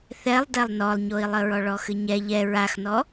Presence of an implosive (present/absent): absent